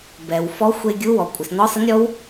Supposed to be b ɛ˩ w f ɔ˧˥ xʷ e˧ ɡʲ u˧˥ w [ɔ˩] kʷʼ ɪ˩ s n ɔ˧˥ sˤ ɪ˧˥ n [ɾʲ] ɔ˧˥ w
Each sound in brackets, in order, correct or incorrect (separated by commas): correct, correct